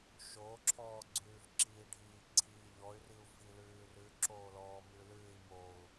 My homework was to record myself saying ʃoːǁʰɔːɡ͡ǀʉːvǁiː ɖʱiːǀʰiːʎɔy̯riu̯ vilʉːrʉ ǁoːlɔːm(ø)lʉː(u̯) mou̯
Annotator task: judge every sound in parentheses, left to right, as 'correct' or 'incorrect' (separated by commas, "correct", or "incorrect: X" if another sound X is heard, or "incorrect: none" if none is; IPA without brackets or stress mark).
incorrect: ʉ, incorrect: i̯